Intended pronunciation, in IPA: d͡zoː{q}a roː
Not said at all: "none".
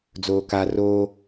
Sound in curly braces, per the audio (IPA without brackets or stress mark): k